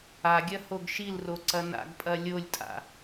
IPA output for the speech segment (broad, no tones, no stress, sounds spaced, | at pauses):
a ɡʲ ɐ h o ɡ ʃ i l r o ǀ ɐ n a̰ ɡ pʼ ɐ lʲ o lʲ tʼ a̰